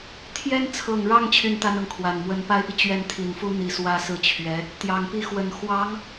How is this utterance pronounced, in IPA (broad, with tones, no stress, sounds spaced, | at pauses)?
t̪ʰ j ɛ˥ n t͡sʰ ɤ˨˩ ŋ ɻ ɑ˥˧ ŋ t͡ɕʰ y˥˩ n t̪ a˥ n ɤ˨ ŋ kʰ w a˨˩ n m w ə˧˥ n p a˥ ɪ̯ p i˨ t͡ɕ ɥ ɛ˥˩ n t̪ʰ i˨˩ n f u˥ n̪ i˨˩ s w ä˥˧ s ɹ̩˥˩ t͡ɕʰ ɥ ɛ˧˥ | t̪ j ɑ˨˩ ŋ p i˥˩ x w ə˨˩ n x w ɑ˧˥ ŋ